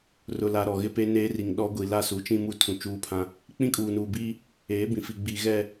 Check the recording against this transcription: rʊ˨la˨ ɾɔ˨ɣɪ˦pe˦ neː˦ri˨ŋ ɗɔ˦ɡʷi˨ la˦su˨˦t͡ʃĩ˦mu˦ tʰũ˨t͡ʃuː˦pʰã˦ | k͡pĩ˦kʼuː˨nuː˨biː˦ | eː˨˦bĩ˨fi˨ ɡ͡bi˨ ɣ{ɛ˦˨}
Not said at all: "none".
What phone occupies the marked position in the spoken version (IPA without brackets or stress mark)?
ɛ˦˨